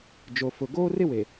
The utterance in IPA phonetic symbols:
d͡ʒ o˨ f ʊ˨ ɡ oː˦ r ɪ˦ w e˨

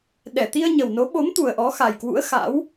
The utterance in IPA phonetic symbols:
ɗ ɛ˧˩ t̪ i˧ ə̯ ɲ ə˨˩ w n o˨˦ ɓ o˨˦ m t̪ u˨˩ ə̯ ʔ ɔ˨˦ x a˨˩ j k w ṵ˧˥ ə̯ x a̰˧˥ w

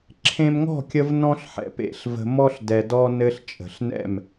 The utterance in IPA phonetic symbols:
ǁʰ ẽ˧ m ŋ ɔ̤˦˨ kʲ ə˧ v n ɔ̃˦ ɬ ħ ɛ̰˨ p ḛ˧ ɬ v ə̤˧ m ɔ˦ ɬ d ɛ˧ d ɔ˦ n ɘ˧ ɬ t͡ʃʼ ə̤˨ ɬ n ɛ̰˦˨ m

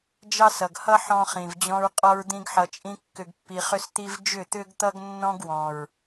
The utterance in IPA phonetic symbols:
d͡ʒ ɑ˦ s ʌ˨ ɡ h ʌ˦ ħ ɔ̃˦ χ ĩ˨ v d͡ʑ ɔ̃˦ ɹ qʼ ɔ˦ ɹ d̪ ĩ˦ ɡ ħ ʌ˧ t͡ʃʼ ĩ˦ kː ʏ˧ ɡ pː i˧ χ ʏ˦ s t̪ i˦ v d͡ʒ ʏ˦˨ t̪ ʏ˦ ɡ t̪ ʌ˦ ɡ nː ɔ̃˦ ɡ w ɔ̃˨ ɹ

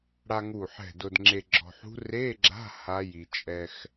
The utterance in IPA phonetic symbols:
ɽ a˧ ŋ u˧˩ ħ ɛ̤˧˩ d ʊ˧ d ŋ͡ǁ e˧ ɡ͡ǁ ɔ̤˧ ħ ṳ˦˥ r e˧˥˧ ɡ͡ǁ a̤˧˥˧ h a˦˥ j i˧ t͡ʃʼ ɛ˧ x

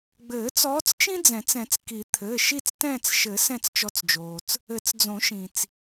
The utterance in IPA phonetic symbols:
ɡ͡b ɘː˨˩˦ t͡s ɔː˨˦ t͡s t͡ʃ ĩ˦ d͡z ɛ̃˨˩˦ t͡s ɛ̃˨˩˦ t͡s k i˨˩˦ t̪ʰ ɘː˩˧˩ ʃ i˦˨ t͡s t ɛ̃ː˦˨ t͡s ʃ ɘ˨˩˦ s ɛ̃˦˨ t͡s t͡ʃ ɔ˨˦ t͡s d͡ʒ oː˩ t͡s | ɘ˨˩˦ t͡s d͡z õ˨˩˦ ʃ ĩ˩ t͡s

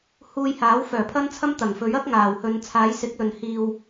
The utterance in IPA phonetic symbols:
h uː˧ j h aː˨˥ w f œː˨˩ pʰ ɐ˥ n t͡sʰ ɐ˥ m t̪ ɐ˨˩ ŋ f ɵ˨˥ ɥ ɐ˥ k̚ ŋ aː˨˩ w h ɵ˨˧ n t͡sʰ aː˨˥ j s ɪ˨˥ k̚ l ɵ˨ n h iː˨ w

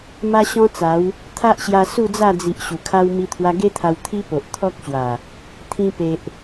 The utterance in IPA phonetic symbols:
m a˦ ɕ ɔ̃˦ t͡s a˨˦ w | t̪ʰ a˦ ʔ ɕ j a˧ s u˥˧ d͡z a˥˧ d͡z i˨ ʔ ɕ u˨˩ kʰ a˦ w m i˧ t̪ʰ w a˧ ɡ e˦ t̪ʰ a˧ w t̪ʰ i˦ p o˨ ʔ t̪ʰ ɔ˦ k̚ ɕ w a˨˩ | t̪ʰ ĩ˧ p e˨ ʔ

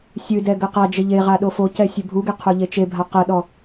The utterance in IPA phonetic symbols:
sʲ ɨ d ɛ ɡ ɘ q a d͡ʒ ɘ ʎ e ʁ a ɗ o f o c ɛ sʲ ɘ bʱ u ɡ e qʰ o ʎ e t͡ʃ e bʱ a q ɐ ɗ ɔ

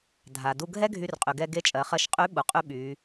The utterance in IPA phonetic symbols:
dʱ a˩ d u˧ ɡʱ ɛ˥ ɡʱ y˧ r qʼ y˩ ɡ ɛ˧ ɡ e˧˥ t͡ʃʼ ɜ˩˧ χ ɜ˧ ʃ qʼ y˧˥ ɓ u˩ qʼ y˧ ɓ y˩˧

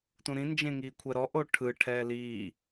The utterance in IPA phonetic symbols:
t ũ ɾ ĩ n d͡ʒ ẽ ŋ iː kʷʰ ɛ ɾ ɔ ʔ o ʈʰ ɯ ʈʰ ɛː l iː

